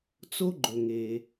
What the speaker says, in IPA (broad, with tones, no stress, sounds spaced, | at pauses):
t͡s o˧ ɡ͡ǃ ɵ˩ ŋ e˩